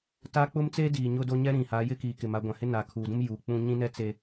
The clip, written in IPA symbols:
t aː˦ k͡p ʊ˦ m t͡s e˦ d iː˨ ɲ ʊ˦ d o˦ ɲ ɛ˦ ɾ ĩ˨ h a˨˦ j ɪ˦ k iː˨ k ɪ˨ m a˨˦ ɡʷ ã˨ h ɪ˦ n aː˨ kʰ uː˨ d ũ˦ m j uː˨ k͡p ũ˦ ɲ ĩ˦ n ɛ˦ t͡s e˦

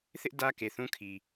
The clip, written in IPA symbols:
θ ɪ˦ ʔ d ä˦ k e˨ θ ũ˦ kʰ i˨

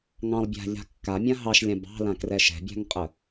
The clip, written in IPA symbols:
ŋ ɑ̃ lˠ bʲ a̤ ʎ a̤ kː a mʲ ã ɦ ɑ ʃ lʲ ã b ɑ̤ l ã k r ɛ ʃ ɛ̤ bʲ a̤ ŋ qʼ ə

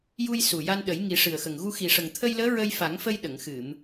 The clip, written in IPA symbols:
j u˧ j s u˨˩ j a˧ n ɗ ə˨˩˦ j ŋ i˨˩˦ ʂ ɨ˨˩ ə̯ x ə˨˩ ŋ ɣ u˧ x i˨˩ ʂ ə˨˩ ŋ t̪ʰ ə˧ j l əː˧˥ ɹ ə˧ j f a˨˩˦ ŋ f ə˧ j ɗ ə˨˩˨ ŋ x ɨ˨˩˨ m

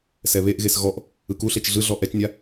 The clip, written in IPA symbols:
s ɛ β e ʔ ɣ e s ɣ ɔ ʔ | ɯ k u ɬ e t͡ʃ ɮ ɯ ɮ ɔ ʔ ɛ t͡ʃ nʲ a

